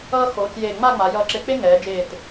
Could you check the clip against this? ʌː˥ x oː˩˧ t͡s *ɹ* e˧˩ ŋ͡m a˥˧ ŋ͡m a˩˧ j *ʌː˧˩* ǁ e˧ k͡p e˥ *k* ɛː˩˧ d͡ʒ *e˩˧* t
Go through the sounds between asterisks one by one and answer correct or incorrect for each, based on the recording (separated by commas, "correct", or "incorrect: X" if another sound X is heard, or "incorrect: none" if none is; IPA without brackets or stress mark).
incorrect: j, correct, incorrect: ŋ, incorrect: e˧˩